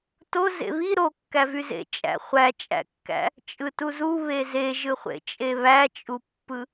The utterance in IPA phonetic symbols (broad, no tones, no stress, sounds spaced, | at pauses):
t o z ḛ β i ɾ o kː æ v y z ḛ t͡ʃʼ æ̰ χʷ æ t͡ʃʼ æ̰ kː æ̰ | t͡ʃʼ ɯ t u z u β e z e ʒ ɯ χʷ ḛ t͡ʃʼ e β æ t͡ʃʼ u pː ɯ